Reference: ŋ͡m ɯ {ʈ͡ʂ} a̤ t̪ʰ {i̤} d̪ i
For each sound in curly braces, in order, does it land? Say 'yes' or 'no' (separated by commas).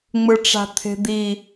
yes, no